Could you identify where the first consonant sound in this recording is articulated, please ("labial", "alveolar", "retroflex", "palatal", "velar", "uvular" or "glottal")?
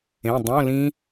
alveolar